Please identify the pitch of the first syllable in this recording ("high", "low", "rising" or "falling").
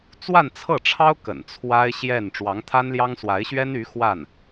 falling